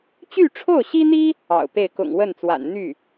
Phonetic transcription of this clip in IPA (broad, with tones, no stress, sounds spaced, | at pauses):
t͡ɕ y˥˧ ʈ͡ʂʰ o˥˩ ʊ̯ ɕ i˥ n̪ i˥ | ɑ̰˨˩ ʊ̯ p e˥˩ ɪ̯ k ʊ̰˨˩ ŋ w ə˥˩ n t͡s w a̰˨˩ n n̪ y˥˩